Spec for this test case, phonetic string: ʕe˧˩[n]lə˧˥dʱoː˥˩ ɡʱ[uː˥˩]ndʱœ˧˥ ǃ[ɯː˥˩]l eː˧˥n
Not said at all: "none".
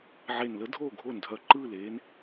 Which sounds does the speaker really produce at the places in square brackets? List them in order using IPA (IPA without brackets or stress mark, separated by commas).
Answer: n, oː˥˩, ɯː˥˩